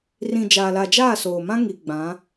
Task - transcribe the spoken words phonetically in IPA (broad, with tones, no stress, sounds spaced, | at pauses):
r ĩ˨ d͡ʒ aː˨ l a˨ d͡ʒ aː˦˨ s oː˨ m ã˦ ŋ i˨ ɡ͡b ã˨˦